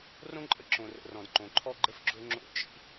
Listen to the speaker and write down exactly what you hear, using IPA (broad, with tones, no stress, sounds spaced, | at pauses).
r õ˥ ǃʼ ə˩ ǁ õ˩ r ə̰˩ r ɔ̃˩ d ǃ õ˩ ǃʰ ɔ˥ ɡ͡ǃ ə˥ f ɡ͡ǁ o˥ ŋ͡ǁ o̰˥ t͡ʃ ḭ˥